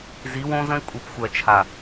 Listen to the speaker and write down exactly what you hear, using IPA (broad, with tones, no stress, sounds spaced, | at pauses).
z i˨˦ w õ˦ z ə̃˦ i̯ kʷʼ i˨ p xʷ ɜ˨ t͡ʃʰ a˨